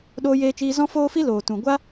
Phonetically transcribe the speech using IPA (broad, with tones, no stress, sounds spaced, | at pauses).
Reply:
ɗ oː˧ j eː˧ t͡ʃ iː˧ z ɔ̃˦ f oː˦ f i˦ l oː˨ t ũ˨ ɡʷ a˦